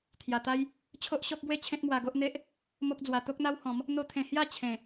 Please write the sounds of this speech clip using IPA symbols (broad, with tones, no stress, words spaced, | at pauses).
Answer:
t̪ʰja˨˩t̪a˦j | t͡ɕʰo˦ʔɕɔ˦k̚ɡwe˥˧ t͡ɕʰẽ˦t̚mwa˧ɡo˦ʔn̪e˦ʔ | mo˦k̚d͡zwa˧ t̪o˦k̚n̪a˦whɔ̃˨˦m | n̪o˦t̪ʰẽ˧ hja˥˧ t͡ɕʰẽ˨˩